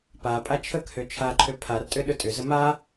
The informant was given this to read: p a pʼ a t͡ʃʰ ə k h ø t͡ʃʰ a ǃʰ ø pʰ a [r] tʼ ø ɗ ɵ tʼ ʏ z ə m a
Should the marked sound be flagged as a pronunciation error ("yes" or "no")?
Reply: no